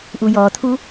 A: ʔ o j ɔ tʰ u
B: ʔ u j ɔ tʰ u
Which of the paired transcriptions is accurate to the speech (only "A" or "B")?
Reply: B